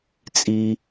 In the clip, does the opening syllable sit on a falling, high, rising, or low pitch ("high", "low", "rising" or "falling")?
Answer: low